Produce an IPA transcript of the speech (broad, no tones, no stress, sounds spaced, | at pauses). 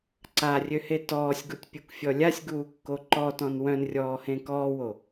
ǀ a rʲ ø h e t ɔː sʲ ɡ u tʲ pʲ u k fʲ ɔ lʲ a sʲ ɡ uː kː o ǃ ɔ t ɔ̃ n w œ̃ n rʲ ɔː h ẽ k ɔː w o